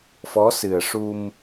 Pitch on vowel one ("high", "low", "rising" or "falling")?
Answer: rising